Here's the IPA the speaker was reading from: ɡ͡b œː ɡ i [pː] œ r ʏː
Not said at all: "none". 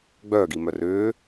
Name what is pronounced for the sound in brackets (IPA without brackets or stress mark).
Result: m